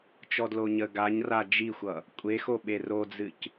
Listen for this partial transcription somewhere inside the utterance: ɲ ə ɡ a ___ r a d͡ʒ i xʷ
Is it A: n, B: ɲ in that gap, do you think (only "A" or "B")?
B